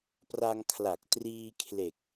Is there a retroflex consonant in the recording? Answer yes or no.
no